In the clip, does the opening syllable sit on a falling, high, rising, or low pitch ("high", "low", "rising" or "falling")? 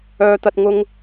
high